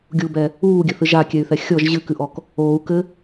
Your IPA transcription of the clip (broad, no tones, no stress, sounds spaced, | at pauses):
ɡʲ u b ɛ | uː ɡʲ ɘ θ ɨ ʒ a kʲ ɛ y̯ θ ɛ xʲ ɔ ʒ ʑ ɨ k ɨ ʔ ɔ k | oː u̯ k ɘ